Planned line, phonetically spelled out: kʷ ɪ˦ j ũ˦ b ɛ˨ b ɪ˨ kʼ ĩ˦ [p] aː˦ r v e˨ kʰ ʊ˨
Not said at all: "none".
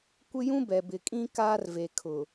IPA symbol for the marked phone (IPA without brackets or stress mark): k